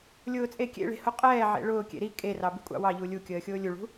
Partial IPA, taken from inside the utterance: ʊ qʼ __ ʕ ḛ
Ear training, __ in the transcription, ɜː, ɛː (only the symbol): ɛː